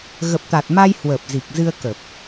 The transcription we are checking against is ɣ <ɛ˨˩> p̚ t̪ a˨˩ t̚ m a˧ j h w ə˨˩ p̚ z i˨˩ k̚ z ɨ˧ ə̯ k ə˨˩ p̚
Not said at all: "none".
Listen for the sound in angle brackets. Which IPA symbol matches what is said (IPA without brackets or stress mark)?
ə˨˩